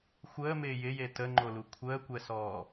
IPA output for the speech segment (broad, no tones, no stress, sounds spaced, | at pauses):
xʷ əː m ɪː j ɪ j e t ə ŋ͡ǃ o l u kʷʰ əː kʷ ɛ s ɔː